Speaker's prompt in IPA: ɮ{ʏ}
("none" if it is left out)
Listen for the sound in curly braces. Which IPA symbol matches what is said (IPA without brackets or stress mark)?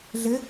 ɪ